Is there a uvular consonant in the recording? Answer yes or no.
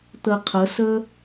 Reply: yes